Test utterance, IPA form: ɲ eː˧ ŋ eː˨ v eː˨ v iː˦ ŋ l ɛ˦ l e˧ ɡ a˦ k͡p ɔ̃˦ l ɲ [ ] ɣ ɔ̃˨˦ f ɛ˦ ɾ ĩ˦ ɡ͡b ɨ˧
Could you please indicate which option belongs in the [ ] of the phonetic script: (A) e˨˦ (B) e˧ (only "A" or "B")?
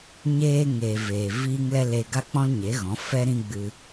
A